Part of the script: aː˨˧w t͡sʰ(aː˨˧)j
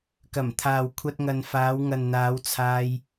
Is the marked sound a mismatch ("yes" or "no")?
yes